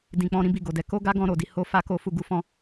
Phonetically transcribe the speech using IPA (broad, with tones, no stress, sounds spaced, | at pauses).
d ĩ˨ k͡p ɔ̃˧ ɾ ĩ˦ b i˦˨ ɡ o˨ d ɛ˧ k o˦ ɡ a˦ ɡ ɔ̃˧ ɾ o˨ d i˧ h o˦ f a˦ k o˦ f u˦˨ ɡ u˨˦ f ɔ̃˦